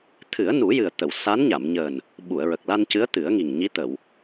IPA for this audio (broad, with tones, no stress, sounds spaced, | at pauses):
t̪ʰ ɨ˨˩˦ ə̯ n u˨˩˦ j ɨ˨˩ ə̯ t̪ ə˨˩˨ w s a˧˥ n ɲ a˨˩˨ m ɲ əː˨˩ n | ɓ u˨˩˨ ə̯ ɹ ə˨˩ k̚ l a˧ n c ɨ˧˥ ə̯ t̪ ɨ˨˩˦ ə̯ ŋ i˨˩ ŋ ɲ i˧˥ t̪ ə˨˩˨ w